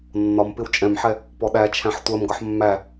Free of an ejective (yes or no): no